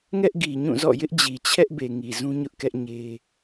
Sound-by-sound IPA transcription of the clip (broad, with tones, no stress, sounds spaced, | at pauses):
ŋ ɛ˦ ʔ ɡ i˨ ɲ ũ˦˨ z ɔ̰˦˨ j ɪ˦ ʔ d͡ʑ i˨ t͡ɕʰ ɛ˦ ʔ b e˨ ŋ i˨ z ũ˦ ɲ ʊ˦ ʔ k ɛ˦ ʔ ɲ e˦